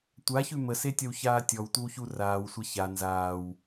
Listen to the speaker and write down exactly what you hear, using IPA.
tʷ a ç ʉ m ə s e tʲ ʌ w ç aː tʲ ɔ w tʷ ɪ w ç u r aː w sʷ a ç a n z aː w

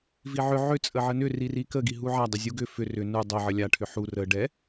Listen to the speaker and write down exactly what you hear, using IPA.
v i ʕ ʏ ʕ ʏ t͡sʼ ə ʕ ə n ʏ r i r i k ə ɡ i ɦ u ʕ a dˤ ə zʲ u ɡ ʏ f ʏ r ʏ n u dˤ ə ʕ ə lʲ a ʈʰ ʏ ħ u r ə ɖ ɛ

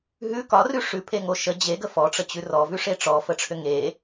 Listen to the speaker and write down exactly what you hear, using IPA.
ɦ ʉ k ɒ r ʉ ʂ ʉ pʰ e ŋ o ʃ ə d͡ʑ e ɡ ə f ɔ ʈ͡ʂ ə t͡ɕ ʉ r ɔ v ʉ ʂ e ʈ͡ʂ ɔ f ə ʈ͡ʂʰ ʏ ŋ e

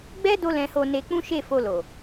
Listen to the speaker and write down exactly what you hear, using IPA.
ɡ͡b ɛ˦ d o˦ l ɛ̃˧ h o˧ n e˧ k͡p ũ˦ ʃ e˦˨ f o˧ l o˨

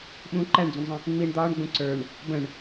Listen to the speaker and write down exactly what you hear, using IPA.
ɓ ũ ǃ æ ɳ d͡z ũ ɳ zˤ ə̃ | ŋ͡m i ɳ d̪ ɒː ɳ ɡ͡b ũ ǀ ə˞ ɳ | b ə̃ ɳ

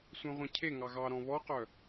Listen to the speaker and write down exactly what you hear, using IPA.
sʷ œ̃ ʁʷ œ̃ cʰ e ŋ ɑ ɣ ɑ ɾ ɔ̃ β ɔ q œ

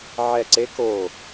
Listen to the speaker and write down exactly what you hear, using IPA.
ʕ ɛ˧˩ ǀ e˦˥ k o˧˩

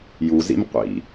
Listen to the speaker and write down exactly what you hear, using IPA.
j u z ḭ m qʷ ḭ

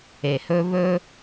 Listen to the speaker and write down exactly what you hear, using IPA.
e˩ h ɵ˧ β ɵ˥

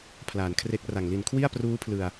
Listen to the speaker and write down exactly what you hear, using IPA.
pʰ l aː˩˦ n kʰ r e˦˥ k̚ r a˨˩ ŋ l i˨˩ n kʰ w i˥˩ a̯ p r uː˦˥ pʰ l ɯ˨˩ a̯

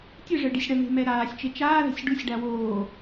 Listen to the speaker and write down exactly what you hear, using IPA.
tʲ ɨ ʐ ɘ ɖ i sʲ ɽ ɐ ŋ e̤ m ɛ ɾ aː sʲ t͡ʃ e t͡ʃ aː ð ɛ̤ sʲ ɖ u sʲ ɖ a w oː

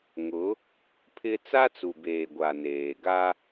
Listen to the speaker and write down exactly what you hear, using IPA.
ŋ ʊ˨˦ | pʰ ɪ˦ t͡s a˦ t͡s u˨ b eː˨ ɡʷ a˨ n eː˨ ɡ a˦

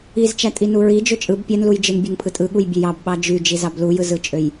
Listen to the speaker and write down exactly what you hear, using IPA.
i z t͡ʃ æ tʼ i n u ɹ i d͡ʒ ø t͡ʃʼ ɯ b pʲ æ n l u j d͡ʒ ɯ n bʲ ø ŋ pʰ ɯ tʼ ɯ ɠ u j bʲ ø j ɑ b ɓ ɑ d͡ʒ y d͡ʒ i z ɑ b l u j ɯ z ɯ t͡ʃʼ ø j

